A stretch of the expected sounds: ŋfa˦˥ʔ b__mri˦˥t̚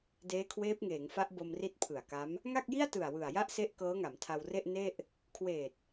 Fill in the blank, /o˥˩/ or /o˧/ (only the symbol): o˧